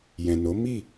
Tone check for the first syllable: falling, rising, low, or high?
low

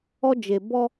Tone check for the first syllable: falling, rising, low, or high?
high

